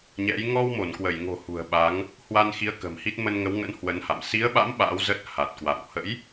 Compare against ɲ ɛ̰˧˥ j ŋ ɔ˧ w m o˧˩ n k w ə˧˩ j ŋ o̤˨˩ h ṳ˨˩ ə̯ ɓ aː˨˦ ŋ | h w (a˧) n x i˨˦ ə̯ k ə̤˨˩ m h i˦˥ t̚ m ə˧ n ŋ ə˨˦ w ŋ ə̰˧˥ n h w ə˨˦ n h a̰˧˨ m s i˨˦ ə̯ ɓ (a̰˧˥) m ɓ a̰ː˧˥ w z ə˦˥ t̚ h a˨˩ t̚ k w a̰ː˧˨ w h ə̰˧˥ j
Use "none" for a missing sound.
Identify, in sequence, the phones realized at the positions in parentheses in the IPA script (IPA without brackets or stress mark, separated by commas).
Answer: a˧, a̰˧˥